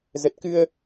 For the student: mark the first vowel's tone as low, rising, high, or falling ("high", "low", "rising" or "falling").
low